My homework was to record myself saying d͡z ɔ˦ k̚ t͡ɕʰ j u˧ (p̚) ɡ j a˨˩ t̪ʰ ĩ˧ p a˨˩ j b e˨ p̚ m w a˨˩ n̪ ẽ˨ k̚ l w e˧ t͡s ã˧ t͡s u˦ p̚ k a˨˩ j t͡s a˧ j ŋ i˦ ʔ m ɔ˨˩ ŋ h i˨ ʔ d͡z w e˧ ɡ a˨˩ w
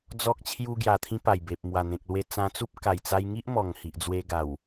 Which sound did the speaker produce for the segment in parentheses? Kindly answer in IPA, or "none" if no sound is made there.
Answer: none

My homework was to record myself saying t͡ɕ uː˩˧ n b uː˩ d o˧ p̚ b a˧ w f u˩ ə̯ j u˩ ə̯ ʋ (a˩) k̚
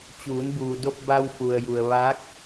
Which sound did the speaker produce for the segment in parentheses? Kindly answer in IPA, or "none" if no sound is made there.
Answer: a˧˥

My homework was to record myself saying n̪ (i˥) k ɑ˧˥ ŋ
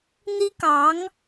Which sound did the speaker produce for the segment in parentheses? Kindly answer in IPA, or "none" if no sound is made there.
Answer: i˥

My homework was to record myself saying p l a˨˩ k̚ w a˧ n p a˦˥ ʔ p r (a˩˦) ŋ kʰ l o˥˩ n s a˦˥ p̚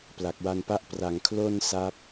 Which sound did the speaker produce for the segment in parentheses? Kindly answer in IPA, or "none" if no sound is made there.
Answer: a˩˦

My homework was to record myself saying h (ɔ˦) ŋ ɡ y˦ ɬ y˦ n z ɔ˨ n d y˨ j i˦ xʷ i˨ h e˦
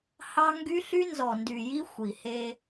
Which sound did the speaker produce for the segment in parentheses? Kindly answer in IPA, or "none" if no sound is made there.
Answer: ɑ˦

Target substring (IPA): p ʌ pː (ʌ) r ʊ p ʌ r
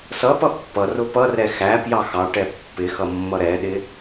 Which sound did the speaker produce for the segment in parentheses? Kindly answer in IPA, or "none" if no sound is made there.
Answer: ʌ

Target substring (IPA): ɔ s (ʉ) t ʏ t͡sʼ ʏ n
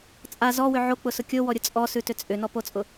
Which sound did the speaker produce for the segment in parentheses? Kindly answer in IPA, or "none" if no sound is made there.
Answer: ʉ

